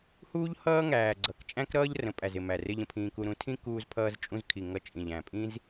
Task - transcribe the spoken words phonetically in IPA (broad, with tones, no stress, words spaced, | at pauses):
huː˦ʎhʌː˦ŋæː˨ ɡ͡ǀʌ˨k t͡ʃʼæ̃˦kɾʌː˦ʎ rə̃˨pʼæ˨z ɪ˨mæ˨rɪ˧ʎ ə̃˧pʰĩː˧ku˧ ɾũ˧tʰĩ˦ kuː˧zpʰʌː˧zt͡ʃʼũ˧zkʰi˨ ŋʌ˧t͡ʃʼĩ˨ʎ æ̃˨pʼĩ˦z